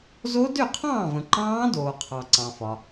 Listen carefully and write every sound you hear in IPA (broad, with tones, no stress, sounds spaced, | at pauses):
z o˦˥ d ø˥˨ qʰ ɑ̃ː˥˨ v ə̃˨ ǃ ɑ̃ː˦˥ d oː˨ qʰ ɑ˨ ǀ ɑ̃˨ f ɒ˨